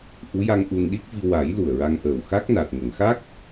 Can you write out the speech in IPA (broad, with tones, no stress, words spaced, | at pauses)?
ʔu˧˥ja˧ŋ ʔu˧n ɗi˦˥k̚vi˧ wa˨˩˦j lu˨˩ə̯ɹa˧ŋʔəː˨˩w xa˦˥k̚na˨˩t̚ ŋə˨˩˨ŋxa˦˥k̚